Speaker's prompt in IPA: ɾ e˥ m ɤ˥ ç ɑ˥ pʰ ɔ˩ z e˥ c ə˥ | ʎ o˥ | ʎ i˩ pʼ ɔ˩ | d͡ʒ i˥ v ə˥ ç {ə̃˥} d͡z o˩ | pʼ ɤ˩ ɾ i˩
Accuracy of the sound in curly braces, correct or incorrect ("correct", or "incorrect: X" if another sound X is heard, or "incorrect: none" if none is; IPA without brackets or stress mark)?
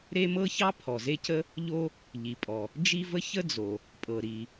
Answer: incorrect: ə˥